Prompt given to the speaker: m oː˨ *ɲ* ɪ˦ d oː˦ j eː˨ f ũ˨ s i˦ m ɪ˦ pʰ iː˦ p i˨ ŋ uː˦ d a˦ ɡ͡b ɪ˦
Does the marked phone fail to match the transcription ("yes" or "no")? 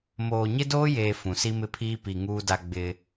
no